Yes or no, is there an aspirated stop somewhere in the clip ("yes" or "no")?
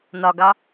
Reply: no